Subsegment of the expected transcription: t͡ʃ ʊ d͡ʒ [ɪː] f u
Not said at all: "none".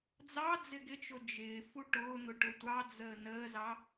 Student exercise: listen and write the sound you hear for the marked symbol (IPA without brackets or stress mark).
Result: ɪː